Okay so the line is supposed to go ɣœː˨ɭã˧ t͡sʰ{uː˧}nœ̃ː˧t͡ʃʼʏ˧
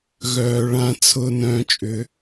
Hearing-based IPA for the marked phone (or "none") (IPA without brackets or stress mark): ʊː˧